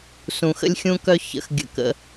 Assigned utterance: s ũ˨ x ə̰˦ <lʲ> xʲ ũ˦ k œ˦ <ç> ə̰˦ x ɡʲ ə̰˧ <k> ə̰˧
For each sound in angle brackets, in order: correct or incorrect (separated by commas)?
correct, correct, correct